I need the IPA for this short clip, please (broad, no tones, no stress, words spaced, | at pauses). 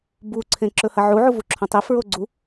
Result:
bu ǀʰẽǁɵhɐʕu ʕuvuǁʰõtˤi fɹoɡ͡ǀu